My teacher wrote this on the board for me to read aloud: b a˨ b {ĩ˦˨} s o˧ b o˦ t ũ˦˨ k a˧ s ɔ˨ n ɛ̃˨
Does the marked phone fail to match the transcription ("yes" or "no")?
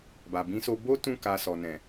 yes